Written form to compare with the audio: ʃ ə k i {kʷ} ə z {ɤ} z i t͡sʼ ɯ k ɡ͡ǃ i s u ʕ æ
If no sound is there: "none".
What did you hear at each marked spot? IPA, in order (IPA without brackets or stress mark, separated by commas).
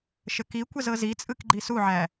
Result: kʷ, ɤ